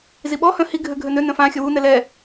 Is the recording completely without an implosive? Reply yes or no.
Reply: no